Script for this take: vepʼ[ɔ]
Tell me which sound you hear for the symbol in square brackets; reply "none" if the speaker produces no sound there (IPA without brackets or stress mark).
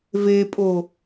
o